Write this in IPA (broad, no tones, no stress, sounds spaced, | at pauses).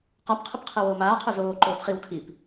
q a p qʰ ə p qʰ ə w oː m aː qʰ o z oː ǃ oː p χ i w kʰ i p